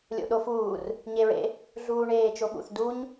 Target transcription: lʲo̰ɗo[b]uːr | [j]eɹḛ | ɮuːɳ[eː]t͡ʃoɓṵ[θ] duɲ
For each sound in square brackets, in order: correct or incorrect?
incorrect: f, incorrect: ɲ, correct, correct

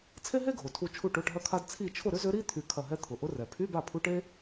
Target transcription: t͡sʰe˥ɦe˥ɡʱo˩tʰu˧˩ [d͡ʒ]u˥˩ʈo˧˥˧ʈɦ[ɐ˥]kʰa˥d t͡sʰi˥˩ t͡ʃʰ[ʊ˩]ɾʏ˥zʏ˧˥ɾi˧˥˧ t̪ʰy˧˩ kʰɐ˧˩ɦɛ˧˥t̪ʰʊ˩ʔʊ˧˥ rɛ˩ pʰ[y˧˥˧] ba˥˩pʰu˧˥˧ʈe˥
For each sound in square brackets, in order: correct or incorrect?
incorrect: t͡ʃʰ, correct, incorrect: ʊ˥˩, correct

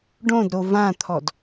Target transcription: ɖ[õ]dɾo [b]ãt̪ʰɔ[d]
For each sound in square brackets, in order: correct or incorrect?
correct, incorrect: v, correct

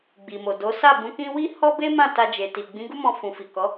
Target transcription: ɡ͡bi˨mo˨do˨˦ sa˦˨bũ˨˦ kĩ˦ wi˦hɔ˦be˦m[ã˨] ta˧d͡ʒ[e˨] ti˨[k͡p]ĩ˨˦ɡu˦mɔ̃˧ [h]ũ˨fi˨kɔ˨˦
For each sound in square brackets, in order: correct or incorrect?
incorrect: ã˦˨, correct, incorrect: ɡ͡b, incorrect: f

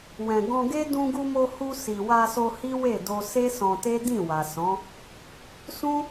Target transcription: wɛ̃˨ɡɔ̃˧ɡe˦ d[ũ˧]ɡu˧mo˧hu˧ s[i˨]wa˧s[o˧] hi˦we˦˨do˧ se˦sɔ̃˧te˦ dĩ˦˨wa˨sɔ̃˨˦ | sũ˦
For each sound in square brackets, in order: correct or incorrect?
correct, correct, correct

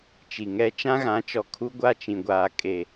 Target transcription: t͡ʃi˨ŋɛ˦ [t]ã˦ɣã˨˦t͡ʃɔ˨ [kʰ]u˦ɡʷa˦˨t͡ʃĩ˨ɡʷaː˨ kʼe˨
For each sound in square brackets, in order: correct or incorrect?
incorrect: t͡ʃ, correct

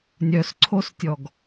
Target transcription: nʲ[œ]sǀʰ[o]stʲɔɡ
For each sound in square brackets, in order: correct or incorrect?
correct, correct

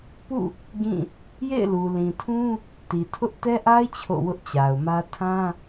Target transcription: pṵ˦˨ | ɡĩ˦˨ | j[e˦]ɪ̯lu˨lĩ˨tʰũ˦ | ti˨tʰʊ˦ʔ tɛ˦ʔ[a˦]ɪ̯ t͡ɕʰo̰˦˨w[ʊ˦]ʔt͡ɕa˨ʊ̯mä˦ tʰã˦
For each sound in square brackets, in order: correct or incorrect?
incorrect: ḛ˦˨, correct, correct

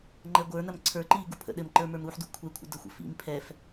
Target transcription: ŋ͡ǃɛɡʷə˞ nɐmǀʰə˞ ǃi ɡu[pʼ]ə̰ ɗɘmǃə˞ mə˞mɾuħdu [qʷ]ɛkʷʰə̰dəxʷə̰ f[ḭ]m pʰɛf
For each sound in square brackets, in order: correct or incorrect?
incorrect: pʰ, incorrect: kʷʰ, correct

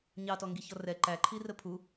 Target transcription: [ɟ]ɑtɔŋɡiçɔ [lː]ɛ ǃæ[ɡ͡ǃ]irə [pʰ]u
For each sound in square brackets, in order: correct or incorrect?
incorrect: ɲ, incorrect: r, incorrect: ǃʰ, correct

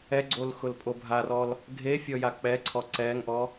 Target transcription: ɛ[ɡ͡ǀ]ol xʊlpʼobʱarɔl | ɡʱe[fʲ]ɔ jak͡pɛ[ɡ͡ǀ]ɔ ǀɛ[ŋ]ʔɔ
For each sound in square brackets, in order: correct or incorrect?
correct, correct, incorrect: ǀʰ, correct

